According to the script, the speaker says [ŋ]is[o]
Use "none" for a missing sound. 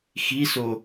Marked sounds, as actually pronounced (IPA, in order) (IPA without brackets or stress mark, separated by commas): x, o